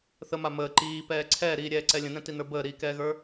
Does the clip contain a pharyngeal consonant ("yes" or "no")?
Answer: no